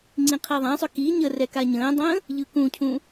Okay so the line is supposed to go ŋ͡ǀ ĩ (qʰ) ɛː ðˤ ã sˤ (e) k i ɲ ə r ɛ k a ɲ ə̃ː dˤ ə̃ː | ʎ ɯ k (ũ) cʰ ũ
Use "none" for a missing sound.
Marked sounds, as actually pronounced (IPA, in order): qʰ, ø, ũ

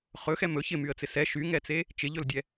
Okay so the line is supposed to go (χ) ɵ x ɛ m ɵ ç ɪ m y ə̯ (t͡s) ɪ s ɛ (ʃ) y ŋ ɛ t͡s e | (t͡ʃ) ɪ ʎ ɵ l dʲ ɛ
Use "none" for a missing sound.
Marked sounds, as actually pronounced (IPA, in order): χ, t͡s, ʃ, t͡ʃ

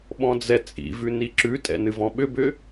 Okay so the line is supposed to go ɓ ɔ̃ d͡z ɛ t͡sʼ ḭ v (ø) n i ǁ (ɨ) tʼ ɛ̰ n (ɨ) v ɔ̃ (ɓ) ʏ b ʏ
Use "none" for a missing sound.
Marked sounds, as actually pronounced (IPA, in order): ʉ, ʉ, ɨ, ɓ

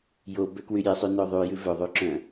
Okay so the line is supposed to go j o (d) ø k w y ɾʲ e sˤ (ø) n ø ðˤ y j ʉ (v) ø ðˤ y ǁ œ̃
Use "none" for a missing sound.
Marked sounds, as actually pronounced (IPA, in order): b, y, v

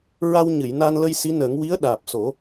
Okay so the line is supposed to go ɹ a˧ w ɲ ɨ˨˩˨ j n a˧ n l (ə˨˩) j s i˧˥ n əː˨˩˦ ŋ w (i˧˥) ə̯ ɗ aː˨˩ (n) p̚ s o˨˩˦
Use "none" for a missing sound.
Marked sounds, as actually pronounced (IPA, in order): ə˧, i˧˥, none

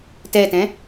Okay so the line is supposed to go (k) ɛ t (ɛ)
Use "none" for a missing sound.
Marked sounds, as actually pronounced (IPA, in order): t, ɛ̃

